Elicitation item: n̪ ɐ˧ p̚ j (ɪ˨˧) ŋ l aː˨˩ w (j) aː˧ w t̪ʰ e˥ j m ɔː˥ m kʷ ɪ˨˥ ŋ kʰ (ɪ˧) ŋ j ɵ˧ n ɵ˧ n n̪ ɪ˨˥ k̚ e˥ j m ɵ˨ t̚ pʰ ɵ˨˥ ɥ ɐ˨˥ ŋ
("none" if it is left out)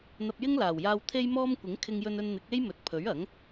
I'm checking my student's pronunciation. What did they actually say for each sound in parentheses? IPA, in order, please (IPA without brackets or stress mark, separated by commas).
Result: ɪ˥, j, ɪ˧